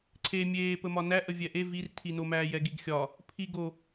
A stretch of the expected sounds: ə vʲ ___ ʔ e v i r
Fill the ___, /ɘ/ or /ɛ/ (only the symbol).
ɛ